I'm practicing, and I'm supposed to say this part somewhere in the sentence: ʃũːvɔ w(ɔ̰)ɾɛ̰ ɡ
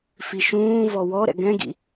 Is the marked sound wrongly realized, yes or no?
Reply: yes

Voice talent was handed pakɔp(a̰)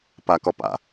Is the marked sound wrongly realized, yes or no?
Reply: no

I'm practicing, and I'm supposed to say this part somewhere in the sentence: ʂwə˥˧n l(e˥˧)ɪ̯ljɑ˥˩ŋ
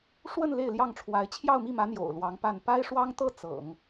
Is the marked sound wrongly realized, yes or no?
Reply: no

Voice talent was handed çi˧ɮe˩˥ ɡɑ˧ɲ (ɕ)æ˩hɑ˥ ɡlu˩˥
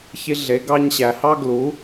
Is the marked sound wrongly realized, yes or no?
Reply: no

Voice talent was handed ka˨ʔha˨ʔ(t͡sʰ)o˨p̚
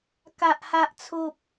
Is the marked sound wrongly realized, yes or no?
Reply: no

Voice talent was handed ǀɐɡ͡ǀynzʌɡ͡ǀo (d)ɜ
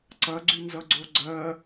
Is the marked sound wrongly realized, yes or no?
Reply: yes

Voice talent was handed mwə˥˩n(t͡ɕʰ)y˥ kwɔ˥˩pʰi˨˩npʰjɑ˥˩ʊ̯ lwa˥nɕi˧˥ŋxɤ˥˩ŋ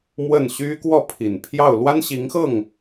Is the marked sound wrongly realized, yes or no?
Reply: yes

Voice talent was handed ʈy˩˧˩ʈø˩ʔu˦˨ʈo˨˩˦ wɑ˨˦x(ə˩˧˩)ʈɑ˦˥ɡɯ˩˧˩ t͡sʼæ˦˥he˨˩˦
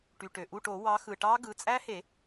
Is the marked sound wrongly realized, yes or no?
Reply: yes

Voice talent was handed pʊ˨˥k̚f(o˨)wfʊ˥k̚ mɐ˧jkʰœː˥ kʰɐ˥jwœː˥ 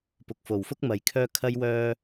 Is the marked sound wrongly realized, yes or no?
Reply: no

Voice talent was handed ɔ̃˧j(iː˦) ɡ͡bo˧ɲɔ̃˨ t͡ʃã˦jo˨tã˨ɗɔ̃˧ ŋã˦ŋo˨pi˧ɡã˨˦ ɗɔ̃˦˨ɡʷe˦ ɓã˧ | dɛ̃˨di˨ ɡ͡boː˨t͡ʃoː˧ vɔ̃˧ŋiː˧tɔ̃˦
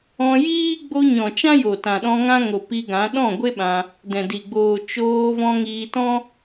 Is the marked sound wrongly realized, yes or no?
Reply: no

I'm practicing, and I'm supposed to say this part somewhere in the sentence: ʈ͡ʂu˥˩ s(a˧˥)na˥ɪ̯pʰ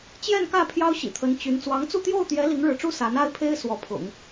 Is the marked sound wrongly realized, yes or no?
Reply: no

